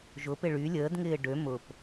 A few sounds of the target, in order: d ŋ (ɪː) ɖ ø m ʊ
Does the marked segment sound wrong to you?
no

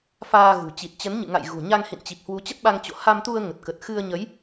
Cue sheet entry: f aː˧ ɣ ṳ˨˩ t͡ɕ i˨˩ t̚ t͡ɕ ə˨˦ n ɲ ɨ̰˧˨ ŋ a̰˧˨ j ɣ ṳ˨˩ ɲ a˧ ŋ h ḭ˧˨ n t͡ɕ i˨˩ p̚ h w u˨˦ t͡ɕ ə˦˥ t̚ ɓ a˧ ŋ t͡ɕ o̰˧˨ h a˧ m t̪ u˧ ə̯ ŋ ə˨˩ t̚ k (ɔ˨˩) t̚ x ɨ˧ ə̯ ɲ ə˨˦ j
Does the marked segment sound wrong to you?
yes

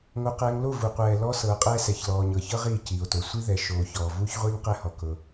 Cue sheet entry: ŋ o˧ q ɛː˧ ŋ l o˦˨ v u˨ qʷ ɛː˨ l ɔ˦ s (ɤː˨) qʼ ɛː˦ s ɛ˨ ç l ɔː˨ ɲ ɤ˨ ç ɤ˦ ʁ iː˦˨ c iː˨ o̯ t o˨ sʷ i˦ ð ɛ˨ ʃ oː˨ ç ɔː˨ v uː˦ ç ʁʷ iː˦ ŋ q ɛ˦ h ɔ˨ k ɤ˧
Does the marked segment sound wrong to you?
no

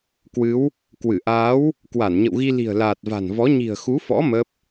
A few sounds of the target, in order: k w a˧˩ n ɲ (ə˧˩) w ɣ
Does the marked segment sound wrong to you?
yes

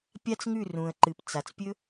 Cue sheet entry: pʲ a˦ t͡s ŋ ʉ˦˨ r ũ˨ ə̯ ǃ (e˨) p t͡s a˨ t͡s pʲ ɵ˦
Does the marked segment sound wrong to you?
yes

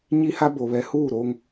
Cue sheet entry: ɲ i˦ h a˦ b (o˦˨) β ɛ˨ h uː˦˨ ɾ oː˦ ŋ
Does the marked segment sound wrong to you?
yes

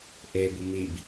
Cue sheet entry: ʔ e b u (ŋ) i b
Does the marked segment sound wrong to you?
yes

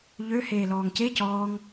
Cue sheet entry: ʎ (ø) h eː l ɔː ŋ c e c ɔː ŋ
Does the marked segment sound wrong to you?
no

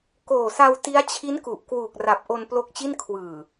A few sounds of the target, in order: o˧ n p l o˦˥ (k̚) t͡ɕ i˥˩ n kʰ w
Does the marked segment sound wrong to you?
no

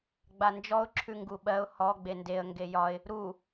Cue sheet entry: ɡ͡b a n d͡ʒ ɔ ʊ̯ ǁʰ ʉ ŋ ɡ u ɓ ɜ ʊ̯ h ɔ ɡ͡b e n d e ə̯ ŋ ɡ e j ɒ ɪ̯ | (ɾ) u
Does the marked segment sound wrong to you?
no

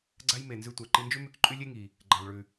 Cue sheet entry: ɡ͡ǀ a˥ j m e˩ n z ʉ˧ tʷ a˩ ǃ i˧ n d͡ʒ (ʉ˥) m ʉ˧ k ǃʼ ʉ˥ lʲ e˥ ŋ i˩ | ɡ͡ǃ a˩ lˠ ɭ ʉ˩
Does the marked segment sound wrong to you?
no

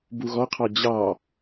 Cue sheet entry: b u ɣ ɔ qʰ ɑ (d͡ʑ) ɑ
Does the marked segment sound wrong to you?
no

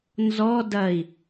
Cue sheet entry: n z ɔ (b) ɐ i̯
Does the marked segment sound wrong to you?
yes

